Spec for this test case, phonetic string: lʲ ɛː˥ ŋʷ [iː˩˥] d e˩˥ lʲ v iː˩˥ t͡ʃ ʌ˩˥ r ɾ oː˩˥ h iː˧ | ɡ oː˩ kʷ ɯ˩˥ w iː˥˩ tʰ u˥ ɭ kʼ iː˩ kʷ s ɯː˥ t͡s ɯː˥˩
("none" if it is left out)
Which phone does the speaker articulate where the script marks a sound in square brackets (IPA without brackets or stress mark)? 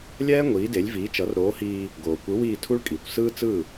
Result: iː˩˥